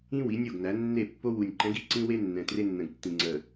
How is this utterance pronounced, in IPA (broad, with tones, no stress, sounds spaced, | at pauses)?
ĩ˦ w i˨˦ nʲ o˦˨ ɡ n æ˨˦ nː e˦˨ pː o˦ w u˨ nʲ ǃ ɛ̃˨˦ ɡ i˨ ǀ ĩ˦ w e˦ nː ɛ̃˨ t r e˦ nː ə̃˨ ɡ tː ĩ˨ ŋ͡ǀ ə˨